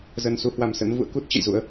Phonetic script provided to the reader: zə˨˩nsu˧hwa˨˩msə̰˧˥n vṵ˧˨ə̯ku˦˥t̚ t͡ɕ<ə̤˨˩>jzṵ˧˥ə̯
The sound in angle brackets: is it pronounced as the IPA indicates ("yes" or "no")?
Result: no